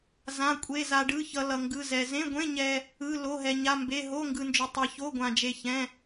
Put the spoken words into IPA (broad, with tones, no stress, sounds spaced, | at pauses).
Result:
z ã˧˥˧ kʷʼ e˧˥˧ z a˧ ɖ ɯ˧˥˧ ç ʌ˧ l ʌ˧ ŋ ɡ ɯ˧˥˧ z ɛ˧ z ẽ˧˥˧ ɡʷ ẽ˧˥˧ ɲ ɛ˧ | ɯ˧˥˧ l o˧˥˧ ɦ ɛ˧ ɲ a˧˥˧ m b e˧˥˧ ɦ o˧˥˧ ŋ ɡ ɯ˧ n d͡ʒ o˧ tˤ e˧ ç o˧˥˧ ɡʷ ã˧ d͡ʒ e˧ ç ɛ̃˧˥˧